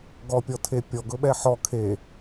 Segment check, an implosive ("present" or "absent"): present